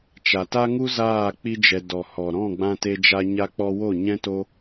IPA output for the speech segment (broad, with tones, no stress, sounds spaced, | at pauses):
t͡ʃ a˨ t a˦ ŋ u˦ z aː˦˨ k͡p i˦ d͡ʒ ɛ˧ d ɔ˨ h ɔ˨ ɾ ɔ̃˦˨ ɡ͡b ã˧ t e˧ d͡ʒ a˧ ɲ a˧ k͡p ɔ˧ w o˦˨ ɲ ɛ̃˦ t o˦